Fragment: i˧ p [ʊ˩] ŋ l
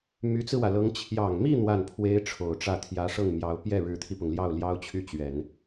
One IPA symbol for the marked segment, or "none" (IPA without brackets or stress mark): ʊ˩